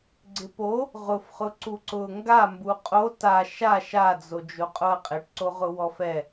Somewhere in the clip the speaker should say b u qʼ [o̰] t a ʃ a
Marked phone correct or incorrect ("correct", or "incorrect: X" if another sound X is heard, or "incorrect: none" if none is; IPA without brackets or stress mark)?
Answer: incorrect: o